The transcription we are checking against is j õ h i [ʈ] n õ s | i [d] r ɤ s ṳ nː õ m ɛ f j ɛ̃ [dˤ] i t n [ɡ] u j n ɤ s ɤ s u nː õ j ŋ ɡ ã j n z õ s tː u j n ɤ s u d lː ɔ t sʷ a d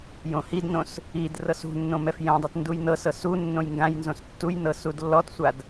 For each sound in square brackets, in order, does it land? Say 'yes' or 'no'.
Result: no, yes, yes, no

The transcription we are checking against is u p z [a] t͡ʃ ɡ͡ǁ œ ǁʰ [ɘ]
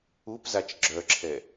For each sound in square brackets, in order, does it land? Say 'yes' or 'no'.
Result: yes, no

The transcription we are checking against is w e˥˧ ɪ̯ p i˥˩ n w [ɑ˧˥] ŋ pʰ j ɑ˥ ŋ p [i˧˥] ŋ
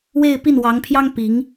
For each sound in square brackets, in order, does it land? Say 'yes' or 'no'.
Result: yes, yes

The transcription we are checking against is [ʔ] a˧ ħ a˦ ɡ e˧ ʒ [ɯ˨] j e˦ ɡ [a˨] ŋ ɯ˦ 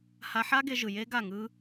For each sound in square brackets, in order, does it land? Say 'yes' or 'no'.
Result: no, yes, no

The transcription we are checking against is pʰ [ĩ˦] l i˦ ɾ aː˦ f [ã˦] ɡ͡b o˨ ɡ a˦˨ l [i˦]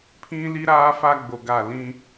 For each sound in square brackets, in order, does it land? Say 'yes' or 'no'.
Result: yes, no, no

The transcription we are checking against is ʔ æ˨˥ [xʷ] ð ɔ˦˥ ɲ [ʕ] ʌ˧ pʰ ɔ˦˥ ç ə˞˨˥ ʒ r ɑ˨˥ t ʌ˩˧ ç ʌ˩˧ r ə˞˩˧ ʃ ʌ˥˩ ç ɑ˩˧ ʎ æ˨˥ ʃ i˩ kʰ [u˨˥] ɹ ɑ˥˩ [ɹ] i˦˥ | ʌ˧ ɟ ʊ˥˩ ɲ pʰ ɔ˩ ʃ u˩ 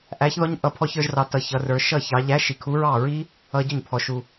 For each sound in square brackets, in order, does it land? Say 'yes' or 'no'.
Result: no, no, yes, yes

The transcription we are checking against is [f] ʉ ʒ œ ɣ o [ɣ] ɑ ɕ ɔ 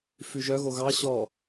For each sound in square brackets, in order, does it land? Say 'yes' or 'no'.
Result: yes, yes

